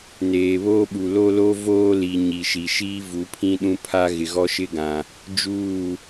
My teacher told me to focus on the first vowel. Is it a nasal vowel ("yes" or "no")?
no